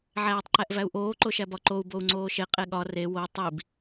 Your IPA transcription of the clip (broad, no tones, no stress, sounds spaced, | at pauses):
ʕ æː tˤ ǃ æ ʔ v æ u̯ ʔ oː ǃ o ʃ æ b ɒ ǃ o u̯ b o u̯ ŋ͡ǀ oː ʃ e qʼ e ɠ ɒ r e w o tˤ i b